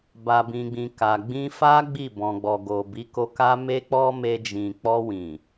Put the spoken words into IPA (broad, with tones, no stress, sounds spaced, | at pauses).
b a˨ b ĩ˨ ɡ͡b ĩ˨ k a˨ ɡ͡b ĩ˧ f a˦ ɡ͡b i˦˨ b ɔ̃˨ ɡ͡b ɔ˨ ɡ o˨ b i˨˦ k o˧ k a˦ m e˦ k͡p ɔ˦ m e˧ d͡ʒ ĩ˨ k͡p ɔ˧ w ĩ˨